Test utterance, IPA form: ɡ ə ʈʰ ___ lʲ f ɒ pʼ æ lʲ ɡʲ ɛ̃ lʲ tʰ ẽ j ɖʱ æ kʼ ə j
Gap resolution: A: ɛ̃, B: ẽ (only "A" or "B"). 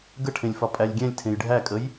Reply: B